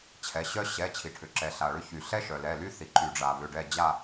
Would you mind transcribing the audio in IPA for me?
t͡ɕʰɛ˩˧˩ɕœ˥ ɕɛ˩˧˩ t͡ɕʰi˩ʈʰʏ˩ǁɛ˩ ɬa˩ɭʏ˦˨çy˩ ɬɛ˥ʃœ˩lɛ˩˧˩ly˥ θi˩ǃy˩ɖ͡ʐa˩ βʏ˩˧˩ɖɛ˦˨ d͡ʑa˦˨

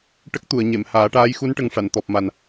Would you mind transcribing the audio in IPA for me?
ʈə˦˥k̚t̪u˨˩˨ə̯ɲe˨˩˨mhaː˨˩˦ ʈaː˧˥jxu˧˥nʈə˨˩ŋ ʂa˨˩˨n t̪ɔ˨˩p̚ma˨˩n

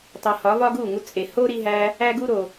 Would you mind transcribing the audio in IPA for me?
tˤu˨hɒ˨˦ vɒ˦ɡu˦˨ŋu˧t͡sʼe˨ ho˦ɾi˧ɦæ˧ | æ˦ɡu˦ɾo˨

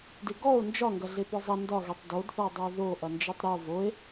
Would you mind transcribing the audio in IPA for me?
dɪɡɔo̯ nd͡ʒɒŋɡɐ ɮepɔzˤɐ ndɒɣetˤ dodθɔ dˤɐo̯ðo ʔɐnd͡ʒetˤɾɪo̯ voe̯

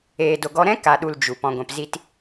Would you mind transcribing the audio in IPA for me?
eː˨do˨ɡɔ˧ɾɛ̃˦ ka˨ɗu˨l d͡ʒu˨ pɔ̃˨ɡʷɛ̃˨pzi˧t

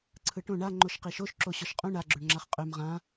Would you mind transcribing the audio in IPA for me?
ǀʰɯʈõ ɳa ŋ͡ǃoʃqiʃoʃ ǁoɕɔʃqʼũ ɳa ɡ͡ǁøɳŋ͡ǁaχqʼøm ʁã

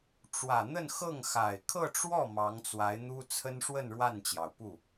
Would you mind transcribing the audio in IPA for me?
ʈ͡ʂwä˨˩n̪ə˥˧nxɤ˥˩ŋ xa˨˩ɪ̯ kʰɤ˥˧ʈ͡ʂwɔ˥˩ mɑ˧˥ŋt͡swa˧˥ɪ̯n̪u˥ t͡sʰə˥nʂwə˥˧n ɻwa˥˩nt͡ɕjɑ˩ʊ̯pu˥˩

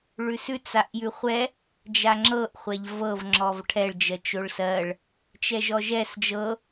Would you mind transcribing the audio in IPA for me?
ɭʉsʉ t͡saʔjʉχʷɛ | d͡ʒaŋ͡ǁɤʔ χʷaʎvɤv ŋ͡ǁɔvʈʰɛɭ d͡ʒɜt͡ʃoɭsɜɭ | t͡ʃɛʒɔʒɛs d͡ʒɤ

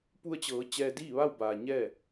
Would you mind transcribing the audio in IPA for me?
pu˧ə̯t͡ɕɤː˩˧ t͡ɕɛː˧diː˥˨ʋa˥˨w baː˩ɲɛː˥˨

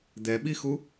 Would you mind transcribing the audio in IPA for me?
d̪ɛɓixu

